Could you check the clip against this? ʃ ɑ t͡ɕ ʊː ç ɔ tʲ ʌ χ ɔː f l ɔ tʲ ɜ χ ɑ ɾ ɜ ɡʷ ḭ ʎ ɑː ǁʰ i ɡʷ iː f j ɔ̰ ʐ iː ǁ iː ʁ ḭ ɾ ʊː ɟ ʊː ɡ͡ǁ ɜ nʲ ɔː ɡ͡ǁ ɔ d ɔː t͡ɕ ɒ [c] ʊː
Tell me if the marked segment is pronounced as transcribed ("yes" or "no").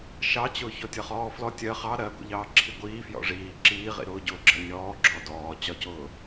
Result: yes